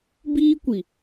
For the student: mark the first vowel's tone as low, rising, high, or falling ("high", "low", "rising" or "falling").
high